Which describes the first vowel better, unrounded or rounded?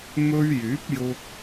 rounded